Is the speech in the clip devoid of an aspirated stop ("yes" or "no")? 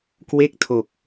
no